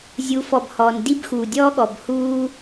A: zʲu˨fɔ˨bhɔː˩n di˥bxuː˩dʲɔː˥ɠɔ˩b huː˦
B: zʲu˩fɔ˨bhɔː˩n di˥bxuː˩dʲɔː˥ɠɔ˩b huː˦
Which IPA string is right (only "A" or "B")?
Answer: A